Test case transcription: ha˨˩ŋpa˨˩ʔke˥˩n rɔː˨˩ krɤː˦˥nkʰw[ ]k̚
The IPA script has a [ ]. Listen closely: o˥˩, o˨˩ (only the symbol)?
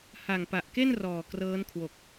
o˨˩